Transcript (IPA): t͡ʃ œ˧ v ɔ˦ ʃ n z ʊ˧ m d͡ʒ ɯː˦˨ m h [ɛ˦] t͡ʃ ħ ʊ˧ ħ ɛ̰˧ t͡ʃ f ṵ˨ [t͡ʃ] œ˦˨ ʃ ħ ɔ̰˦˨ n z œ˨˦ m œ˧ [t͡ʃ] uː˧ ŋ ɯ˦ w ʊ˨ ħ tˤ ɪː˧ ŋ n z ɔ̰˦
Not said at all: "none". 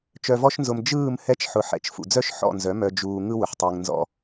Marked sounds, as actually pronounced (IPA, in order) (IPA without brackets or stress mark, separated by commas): ɛ˦, d͡z, d͡ʒ